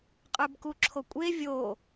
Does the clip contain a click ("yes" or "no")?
yes